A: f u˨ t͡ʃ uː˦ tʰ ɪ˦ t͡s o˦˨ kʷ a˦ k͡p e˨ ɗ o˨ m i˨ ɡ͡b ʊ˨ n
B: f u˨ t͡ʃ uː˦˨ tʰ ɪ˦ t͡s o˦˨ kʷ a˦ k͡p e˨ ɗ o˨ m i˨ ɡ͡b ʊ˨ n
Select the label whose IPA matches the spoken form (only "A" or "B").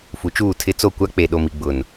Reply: B